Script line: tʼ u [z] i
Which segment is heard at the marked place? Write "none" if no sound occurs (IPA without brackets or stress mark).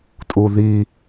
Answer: ð